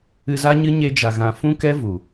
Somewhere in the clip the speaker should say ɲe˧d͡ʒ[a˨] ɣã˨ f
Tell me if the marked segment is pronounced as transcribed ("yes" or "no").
yes